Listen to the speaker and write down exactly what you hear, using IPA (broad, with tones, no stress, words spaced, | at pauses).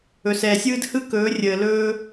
ɵ˨sɛː˨sʲɯː˦d hɯ˦kɵː˨˦ rʲəː˨lɵː˦